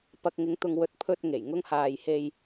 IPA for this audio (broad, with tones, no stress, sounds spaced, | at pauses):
p ɐ˧ k̚ ŋ ɪ˨˧ ŋ t̪ ʊ˨ ŋ w ɵ˨ t̚ pʰ ɵ˧ t̚ ŋ e˨˩ j ŋ ʊ˥ ŋ h aː˧ j h e˧ j